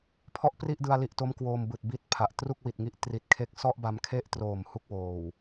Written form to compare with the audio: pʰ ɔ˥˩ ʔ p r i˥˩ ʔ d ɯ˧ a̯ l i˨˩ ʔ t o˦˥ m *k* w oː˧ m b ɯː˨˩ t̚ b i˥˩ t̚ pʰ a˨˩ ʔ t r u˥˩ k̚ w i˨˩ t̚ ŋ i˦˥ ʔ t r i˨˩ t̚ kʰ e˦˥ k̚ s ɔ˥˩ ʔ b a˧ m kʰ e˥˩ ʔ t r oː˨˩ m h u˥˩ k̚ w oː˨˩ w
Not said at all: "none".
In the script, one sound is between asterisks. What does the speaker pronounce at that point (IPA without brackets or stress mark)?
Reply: k